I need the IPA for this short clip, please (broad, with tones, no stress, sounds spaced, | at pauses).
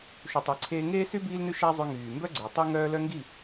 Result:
ʃ u˨ tˤ i˨ ǀʰ eː˧ ŋ eː˦ s y˦ b iː˦ l n ʉ˦ ʃ æ˦ zˤ ʉ˧ ŋ yː˨ m b œ˦ ɡ͡ǀ e˨ tˤ e˦ ŋ œː˦ l œ˦ ŋ ɡ i˦˨